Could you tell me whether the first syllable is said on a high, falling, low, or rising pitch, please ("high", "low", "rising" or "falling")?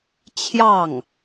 falling